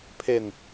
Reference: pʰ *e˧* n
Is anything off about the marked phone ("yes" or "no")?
no